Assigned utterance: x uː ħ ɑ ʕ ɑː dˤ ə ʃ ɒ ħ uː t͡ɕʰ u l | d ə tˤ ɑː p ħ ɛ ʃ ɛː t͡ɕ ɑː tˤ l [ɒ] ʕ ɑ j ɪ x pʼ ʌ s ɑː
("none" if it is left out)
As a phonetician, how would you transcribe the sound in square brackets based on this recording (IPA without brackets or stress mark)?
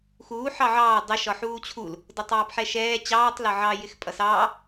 ɒ